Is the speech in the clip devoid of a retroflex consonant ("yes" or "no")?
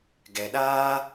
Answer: yes